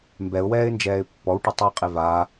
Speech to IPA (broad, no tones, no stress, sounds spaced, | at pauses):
m b ɛ ʊ̯ w ɛː ɪ̯ n d͡ʒ ɛː ɪ̯ pː ɔ w ʈ ə tˤ ɨ ɪ̯ qʼ e v a